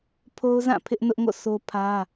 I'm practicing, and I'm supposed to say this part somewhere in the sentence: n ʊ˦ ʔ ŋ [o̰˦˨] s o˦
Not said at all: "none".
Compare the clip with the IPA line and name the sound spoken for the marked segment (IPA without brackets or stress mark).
o̰˦˨